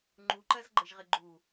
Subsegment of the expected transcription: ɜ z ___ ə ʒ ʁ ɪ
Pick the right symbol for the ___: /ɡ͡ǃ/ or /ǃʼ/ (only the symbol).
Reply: ɡ͡ǃ